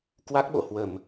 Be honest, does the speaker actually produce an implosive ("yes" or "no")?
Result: yes